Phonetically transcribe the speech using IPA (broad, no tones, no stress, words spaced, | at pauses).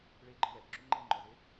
ɭeɡ͡ǃɪ wɛbǁu ŋ͡ǃelŋ͡ǃɔze